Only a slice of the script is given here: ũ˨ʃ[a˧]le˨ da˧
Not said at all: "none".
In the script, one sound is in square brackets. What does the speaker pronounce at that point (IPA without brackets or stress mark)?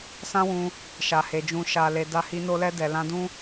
a˨